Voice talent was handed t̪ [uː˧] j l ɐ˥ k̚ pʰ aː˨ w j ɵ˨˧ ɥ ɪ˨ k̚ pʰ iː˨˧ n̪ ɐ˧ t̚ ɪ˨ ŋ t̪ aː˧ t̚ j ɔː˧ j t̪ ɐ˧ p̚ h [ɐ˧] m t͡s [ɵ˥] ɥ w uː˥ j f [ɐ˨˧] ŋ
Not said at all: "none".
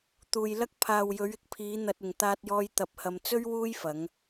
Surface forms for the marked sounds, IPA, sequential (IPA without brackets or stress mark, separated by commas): uː˨, ɐ˧, ɵ˥, ɐ˨˧